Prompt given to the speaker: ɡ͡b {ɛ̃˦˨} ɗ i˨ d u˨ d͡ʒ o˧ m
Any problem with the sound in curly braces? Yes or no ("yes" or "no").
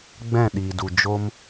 no